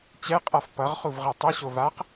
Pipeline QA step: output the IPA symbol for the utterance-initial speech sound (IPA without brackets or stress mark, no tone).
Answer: t͡ɕ